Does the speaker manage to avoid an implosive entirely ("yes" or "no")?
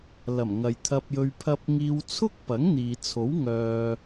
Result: yes